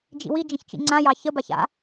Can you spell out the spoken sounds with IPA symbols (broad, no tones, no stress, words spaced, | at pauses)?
d͡ʒḭwi d͡ʒə̃çt͡ʃḭŋ͡ǀã jɑçə baça̰